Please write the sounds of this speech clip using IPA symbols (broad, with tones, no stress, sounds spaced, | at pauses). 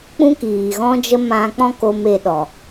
k͡p ũ˦ k iː˨ ɣ ɔ̃˦ d͡ʒ ə˦ m ã˧ k͡p ɔ̃˦ k o˧ m e˧ ɗ ɔ˨